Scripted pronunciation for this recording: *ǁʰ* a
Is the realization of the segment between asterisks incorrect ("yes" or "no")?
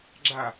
yes